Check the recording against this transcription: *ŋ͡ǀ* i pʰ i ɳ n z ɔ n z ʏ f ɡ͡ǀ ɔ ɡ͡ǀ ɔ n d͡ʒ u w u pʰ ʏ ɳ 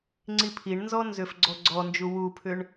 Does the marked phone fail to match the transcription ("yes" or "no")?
no